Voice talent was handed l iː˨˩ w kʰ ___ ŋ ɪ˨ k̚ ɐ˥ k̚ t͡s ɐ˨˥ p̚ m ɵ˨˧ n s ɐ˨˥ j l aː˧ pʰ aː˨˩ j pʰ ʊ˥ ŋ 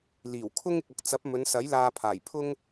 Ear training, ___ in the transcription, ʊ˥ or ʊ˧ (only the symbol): ʊ˥